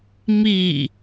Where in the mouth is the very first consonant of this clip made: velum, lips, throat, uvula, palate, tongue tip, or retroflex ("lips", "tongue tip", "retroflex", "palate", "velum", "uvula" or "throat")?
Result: lips